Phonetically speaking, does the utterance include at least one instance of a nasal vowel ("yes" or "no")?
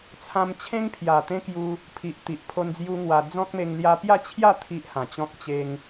yes